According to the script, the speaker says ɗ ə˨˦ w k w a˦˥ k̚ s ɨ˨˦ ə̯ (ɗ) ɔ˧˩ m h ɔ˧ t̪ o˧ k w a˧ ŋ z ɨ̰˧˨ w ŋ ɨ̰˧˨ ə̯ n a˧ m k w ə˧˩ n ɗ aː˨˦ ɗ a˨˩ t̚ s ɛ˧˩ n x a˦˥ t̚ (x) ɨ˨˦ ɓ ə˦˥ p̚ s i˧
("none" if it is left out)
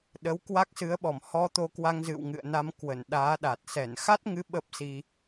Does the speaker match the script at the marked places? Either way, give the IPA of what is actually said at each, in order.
ɓ, ŋ

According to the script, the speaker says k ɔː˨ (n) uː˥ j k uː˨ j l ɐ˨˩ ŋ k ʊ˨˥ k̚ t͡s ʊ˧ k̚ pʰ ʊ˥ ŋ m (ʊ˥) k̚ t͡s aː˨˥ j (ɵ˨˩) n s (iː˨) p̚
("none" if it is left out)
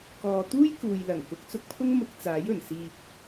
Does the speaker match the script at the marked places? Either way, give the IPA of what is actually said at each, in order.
t̪, ʊ˧, ɵ˨˩, iː˨

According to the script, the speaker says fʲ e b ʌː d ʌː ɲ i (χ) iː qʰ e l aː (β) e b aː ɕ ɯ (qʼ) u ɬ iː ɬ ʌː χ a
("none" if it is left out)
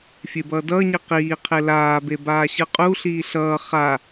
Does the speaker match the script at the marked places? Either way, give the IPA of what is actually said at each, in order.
q, b, qʼ

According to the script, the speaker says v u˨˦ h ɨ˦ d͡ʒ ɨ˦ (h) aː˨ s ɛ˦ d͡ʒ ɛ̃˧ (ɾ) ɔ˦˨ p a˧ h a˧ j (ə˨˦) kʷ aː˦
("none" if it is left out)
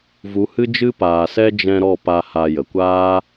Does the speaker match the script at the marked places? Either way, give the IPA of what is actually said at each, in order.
p, ɾ, ə˨

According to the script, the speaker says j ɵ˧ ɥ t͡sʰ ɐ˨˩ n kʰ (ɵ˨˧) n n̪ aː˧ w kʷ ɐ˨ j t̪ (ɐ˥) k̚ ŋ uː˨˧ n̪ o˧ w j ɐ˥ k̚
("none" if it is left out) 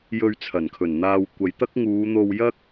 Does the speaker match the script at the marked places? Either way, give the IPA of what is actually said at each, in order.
ɵ˨˩, ɐ˥

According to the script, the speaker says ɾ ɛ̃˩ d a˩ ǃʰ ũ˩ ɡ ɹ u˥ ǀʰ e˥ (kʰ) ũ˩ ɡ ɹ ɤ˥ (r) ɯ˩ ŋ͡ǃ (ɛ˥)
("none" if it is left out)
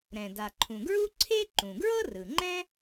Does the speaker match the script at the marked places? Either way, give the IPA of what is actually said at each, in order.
ǃ, r, ɛ̃˥

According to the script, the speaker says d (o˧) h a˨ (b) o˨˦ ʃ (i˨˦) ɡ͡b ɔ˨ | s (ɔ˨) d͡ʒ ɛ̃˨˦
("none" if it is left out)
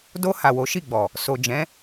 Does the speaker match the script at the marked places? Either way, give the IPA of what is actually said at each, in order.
o˧, w, i˦˨, o˨

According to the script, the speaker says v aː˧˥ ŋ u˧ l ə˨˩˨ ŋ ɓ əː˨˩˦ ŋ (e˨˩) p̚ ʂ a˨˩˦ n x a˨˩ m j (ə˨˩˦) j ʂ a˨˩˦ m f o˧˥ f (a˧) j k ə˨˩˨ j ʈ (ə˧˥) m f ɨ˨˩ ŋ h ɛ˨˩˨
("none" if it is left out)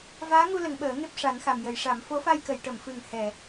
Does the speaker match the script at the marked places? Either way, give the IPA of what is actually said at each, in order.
e˦˥, ə˨˩˦, a˧, ə˨˩˨

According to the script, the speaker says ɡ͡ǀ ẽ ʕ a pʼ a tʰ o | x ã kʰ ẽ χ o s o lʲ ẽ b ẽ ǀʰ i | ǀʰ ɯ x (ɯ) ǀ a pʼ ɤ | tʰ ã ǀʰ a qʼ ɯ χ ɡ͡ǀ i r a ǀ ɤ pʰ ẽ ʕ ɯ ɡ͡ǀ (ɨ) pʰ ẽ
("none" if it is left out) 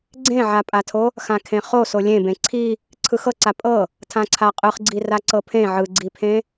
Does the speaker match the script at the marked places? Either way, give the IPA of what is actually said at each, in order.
ɤ, i

